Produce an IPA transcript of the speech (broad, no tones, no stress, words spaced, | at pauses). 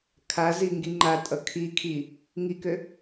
kʰaziŋɡi ŋ͡ǃatʼʌ kʰikʰi | ŋikø